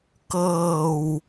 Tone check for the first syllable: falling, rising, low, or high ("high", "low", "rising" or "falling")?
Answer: low